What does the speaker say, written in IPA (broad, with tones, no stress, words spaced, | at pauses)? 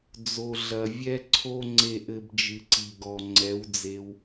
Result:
d͡zo˨ɮɐ˨ vʲɛ˦ǀʰo˦ ŋ͡ǀe˨ʔɘ˨b d͡ʒɨ˨ǀi˨ɡɔ˨ ŋ͡ǀɛ˨˦wd͡ze˧w